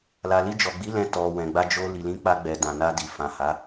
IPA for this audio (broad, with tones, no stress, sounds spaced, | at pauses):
l a˨ l i˧ d͡ʒ ɔ˨ ɡ͡b i˨˦ l ɛ̃˧ t ɔ˨ w ɛ̃˨ ɡ͡b a˧ d͡ʒ o˧ l i˨ l ĩ˨˦ k͡p a˧ ɡ͡b ɛ˨ d ã˨ n a˧ d i˨ f ã˨ h a˨˦